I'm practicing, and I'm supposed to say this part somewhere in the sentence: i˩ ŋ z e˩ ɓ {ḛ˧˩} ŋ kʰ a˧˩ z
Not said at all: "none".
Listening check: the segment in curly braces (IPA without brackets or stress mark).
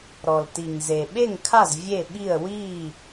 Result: e˧˩